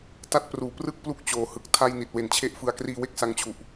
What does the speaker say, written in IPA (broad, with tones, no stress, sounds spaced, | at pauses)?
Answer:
t a˦˥ t̚ p r uː˨˩ p r ɯ˥˩ k̚ p l u˥˩ k̚ t͡ɕ oː˨˩ h ɯ˨˩ k̚ tʰ a˥˩ j n i˨˩ t̚ w e˨˩ n t͡ɕʰ e˦˥ ʔ f ɯ˧ a̯ k r iː˧ w e˥˩ k̚ s a˧ ŋ t͡ɕʰ u˨˩ ʔ